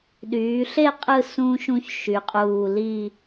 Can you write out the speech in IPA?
ɗ yː˩˧ ɬ e˥˧ qʼ ɯ˥˧ s ũ˥ ʃ ũ˥ ç ʃ y˩˧ qʼ uː˧˩ l i˥˧

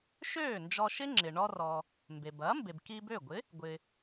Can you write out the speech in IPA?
ʃ øː˥˩ n d͡ʒ ɔ˧ ʃ ɪ˥ ŋ͡ǁ ɪ˩ ɳ ɔ˧ r ɔ˩ | m b e˩ b ɐː˩˥ m b e˩ b k i˧ b ø˥˩ ɡʷ ɪ˩˥ | ɡʷ ɪ˩

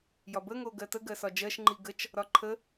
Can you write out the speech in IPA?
j ɒ b ə ŋ o ɡ ɜ t ə ɡ ɜ s ɒ d͡ʒ ɜ ʃ ŋ͡ǃ i ɡ ə t͡ʃ | ɾ ɒ ǃʰ ə

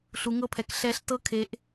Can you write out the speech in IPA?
ɬ u˩˧ ŋ ɤ˧ pʰ ɛ˩˧ k ɬ ɛ˧˥ ɬ t ɤ˥ kʰ e˧˥ ʔ

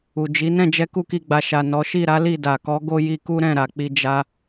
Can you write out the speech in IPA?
u˨ d͡ʒ i˨˦ n ɛ̃˦˨ d͡ʒ ɛ˧ k u˦ k i˧ ɡ͡b a˨ ʃ a˨ n ɔ˨˦ ʃ i˦˨ ɾ a˨˦ l i˦˨ d a˨ k ɔ˨˦ ɡ o˦ j i˧ k u˦ ɾ ɛ̃˦˨ ɾ a˨ k͡p i˧ d͡ʒ a˧

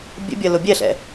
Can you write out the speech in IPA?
bʲ ə̰ bʲ ɐ l ʊ bʲ ɛ ɬ ɛ̰

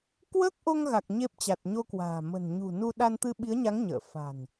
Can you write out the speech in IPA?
k w əː˦˥ k̚ ʔ o˧ ŋ ɣ a˨˩ k̚ ɲ e˦˥ p̚ t͡ɕ a˨˩ t̚ ɲ o˧ k w a̤ː˨˩ m ə̤˨˩ n ɲ ṳ˨˩ n u˧ ɗ a˧ n t̪ ɨ˧ ɓ i˨˦ ə̯ ɲ a˨˦ ŋ ɲ ə̰ː˧˨ f a̤˨˩ n

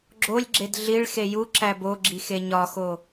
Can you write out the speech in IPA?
ɡ͡ǁ o lʲ ɡ͡ǁ e d ɮ i ɭ x e j u ǁ æ b o ɡ͡ǁ i x e ɲ ɒ x o

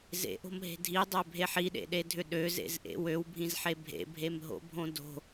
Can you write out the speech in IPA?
z ḛ ʔ o̤ m ɦ e̤ dʱ i dˤ ø bʱ e ħ i ɗ ḛ ɗ e dʱ ʏ ɗ ø z ḛ z ʔ ḛ w ø w bʱ ĩ z ħ e bʱ ḛ bʱ e m ɦ o̰ bʱ õ d o̤

